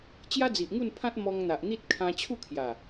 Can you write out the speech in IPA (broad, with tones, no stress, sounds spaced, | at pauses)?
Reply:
t͡ɕ j a˦ d͡z i˨ ʔ ŋ u˥˧ n pʰ ã˦ t̚ m ɔ˧ ŋ n̪ a˨ ʔ n̪ i˦ t̚ kʰ ã˧ t͡ɕʰ u˥˧ kʰ j a˨˩